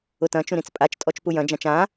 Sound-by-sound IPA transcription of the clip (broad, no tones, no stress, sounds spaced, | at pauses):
ʊ t ɐ̃ t͡ʃ ũ ɾ ĩ t͡s pʼ a t͡ʃ tʼ ɔ t͡ʃ p u j ɐ̃ d͡ʒ ã t͡ʃ ã